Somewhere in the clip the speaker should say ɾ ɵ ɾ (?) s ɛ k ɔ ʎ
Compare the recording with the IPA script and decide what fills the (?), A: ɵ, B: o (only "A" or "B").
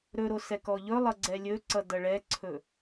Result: B